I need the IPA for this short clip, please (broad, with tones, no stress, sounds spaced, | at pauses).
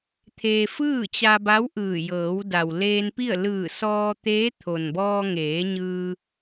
t̪ʰ e˧ f ɯː˥˨ t͡ɕ a˧ b a˧˥ w ʔ ɯː˧˩ j ɤː˩˧ w d a˩ w l eː˧ n p i˥˨ ə̯ l ɯː˧˩ s ɔː˧ t̪ eː˧˥ t̪ʰ o˩ n b ɔː˧ ŋ eː˩˧ ɲ ɯː˧